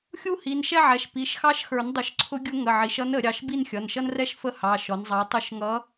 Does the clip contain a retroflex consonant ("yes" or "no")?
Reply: no